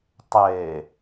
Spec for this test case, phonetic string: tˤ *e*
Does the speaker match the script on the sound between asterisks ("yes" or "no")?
yes